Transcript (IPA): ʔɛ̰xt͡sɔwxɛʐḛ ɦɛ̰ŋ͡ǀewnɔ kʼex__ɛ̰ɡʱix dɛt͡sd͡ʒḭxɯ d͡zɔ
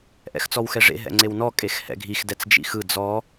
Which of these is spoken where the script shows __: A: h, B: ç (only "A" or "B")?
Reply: A